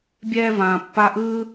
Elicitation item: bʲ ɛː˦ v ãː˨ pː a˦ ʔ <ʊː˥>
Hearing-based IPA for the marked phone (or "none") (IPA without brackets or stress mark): ɯː˥